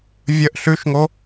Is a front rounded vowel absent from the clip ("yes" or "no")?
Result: yes